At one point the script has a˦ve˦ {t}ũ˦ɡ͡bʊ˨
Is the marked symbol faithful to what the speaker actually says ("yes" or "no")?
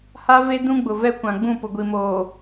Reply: no